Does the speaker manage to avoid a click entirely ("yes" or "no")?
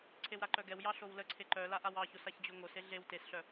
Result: no